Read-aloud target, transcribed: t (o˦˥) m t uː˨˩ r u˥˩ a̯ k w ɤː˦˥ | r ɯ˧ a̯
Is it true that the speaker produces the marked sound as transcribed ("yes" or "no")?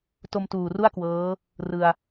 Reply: no